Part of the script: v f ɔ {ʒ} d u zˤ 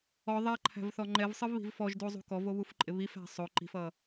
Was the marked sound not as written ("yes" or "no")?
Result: no